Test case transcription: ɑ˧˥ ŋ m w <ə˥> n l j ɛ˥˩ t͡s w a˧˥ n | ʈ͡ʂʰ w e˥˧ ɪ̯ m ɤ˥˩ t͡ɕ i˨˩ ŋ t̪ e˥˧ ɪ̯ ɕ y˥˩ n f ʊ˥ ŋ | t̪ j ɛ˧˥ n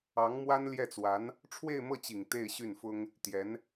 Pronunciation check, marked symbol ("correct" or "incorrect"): incorrect